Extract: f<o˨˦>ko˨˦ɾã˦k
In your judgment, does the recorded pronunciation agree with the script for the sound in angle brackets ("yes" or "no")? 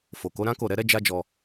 no